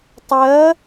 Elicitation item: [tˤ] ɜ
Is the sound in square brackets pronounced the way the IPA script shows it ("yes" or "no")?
yes